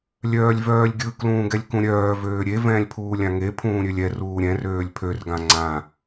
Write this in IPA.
lʲ œː lʲ v œː lʲ ɡʲ ɯ k l ũː ɡ ɛ lʲ k ũ ɾʲ œː v øː ɾʲ e v ɛ̃ː lʲ pʰ uː lʲ ã ŋ e pʰ ũː ɾʲ ø lʲ ɛ r uː ɾʲ ɛ̃ r øː lʲ pʰ ø r ɡ ã ŋ͡ǀ ã

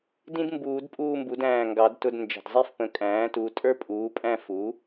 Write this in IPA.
d ĩ˥ d m b uː˨˩˦ d pʼ uː˥˧ m b u˩˥ d æ̃ː˩˧˩ ŋ ɡ ɑ˨˩˦ d t ʊ˧˥˧ d n d͡ʒ ə̤˩˧˩ d zˤ i˥˧ f p ə̃˨˩˦ kʼ æ̃ː˩˥ t u˩˧˩ tʼ ə˞˥ pʼ uː˩˥ pʼ æ̃˥˧ f u˩˥

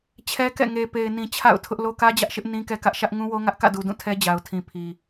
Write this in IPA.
t͡ɕʰ ɛ˦ k ɛ̰˦˨ ŋ e˨ p e˨ ɪ̯ n ĩ˨ t͡ɕʰ a̰˦˨ ʊ̯ tʰ ʊ˦ ʔ l o˦ k ä˦ d͡ʑ ä˦ ʔ ʃ ɪ˦ ʔ n ĩ˦ k ɛ˦ k ä˦ ʔ ʃ ä˦ ʔ ŋ ũ˦ w o˦ ŋ ä˦ ʔ k ä̰˦˨ d u˨ d ũ˦˨ tʰ ɛ˦ d͡ʑ a˨ ʊ̯ tʰ ĩ˨ pʰ i˨

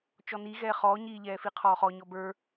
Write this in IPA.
t͡ʃ ɔ n i ɣ ɛː χ ɔː ɲ iː ʎ ɛː f i qʰ ɔː χ ɔ ɲ ɔ b ə˞

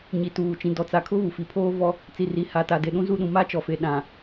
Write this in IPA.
ɲ i˨ t uː˨ t͡ʃ ĩ˨ d ɔ˨ t͡s a˨ kʰ ʊ˦ β u˨ f i˨ pʰ oː˦ v ɔ˦ | t͡s i˨ r i˨ h a˨ t a˨ d e˨ ɗ ũ˦ z u˦˨ ɗ ũ˨ m a˦ t͡ʃ ɔ˨ f e˨ ɗ ã˨

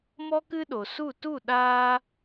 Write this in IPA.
m ɔ˦ k ɨ˦ ɗ o˨ s u˦˨ t u˦˨ ɗ aː˦

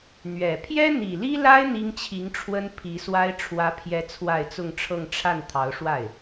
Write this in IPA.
n̪ ɥ ɛ˨˩ pʰ j ɛ˥ n̪ i˨˩ l i˥ l a˥ ɪ̯ n̪ i˥ ŋ t͡ɕʰ i˧˥ ŋ ʈ͡ʂʰ w ə˥ n pʰ i˧˥ s w a˥ ɪ̯ ʈ͡ʂʰ w ä˧˥ pʰ j ɛ˧˥ t͡sʰ w a˥˧ ɪ̯ t͡s ʊ˥˧ ŋ ʈ͡ʂʰ ɤ˥˧ ŋ ʈ͡ʂʰ a˥˩ n t̪ʰ ɑ˧˥ ʊ̯ ʂ w a˥˩ ɪ̯

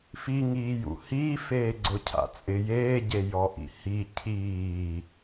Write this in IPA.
f i ŋ iː j ṵ h iː f eː ɡ͡ǀ ʊ cʰ a̰ t͡sʼ ɪ j eː ɟ e j ɔ ʔ ḭ h i cʰ iː

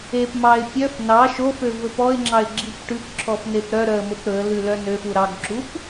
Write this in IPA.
e p m ɑ ɪ̯ pʲ œ f n ɑ ʃ o f ø v ɵ p ɔ ɪ̯ ŋ͡ǁ ɑ ɪ̯ ɡ͡ǁ i p ʈ ʉ p ǁʰ ɔ f n e p ɾ œ ɾ œ ə̯ m o p ɾ ɵ ə̯ l ʉ l œ n ø f u ɾ ɑ ɡ ǁ u p

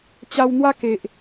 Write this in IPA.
t͡ɕ a˧ w n̪ w a˦ k e˨ ʔ

